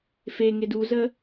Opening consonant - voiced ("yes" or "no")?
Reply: no